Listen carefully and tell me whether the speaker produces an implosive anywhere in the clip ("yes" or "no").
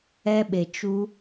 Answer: yes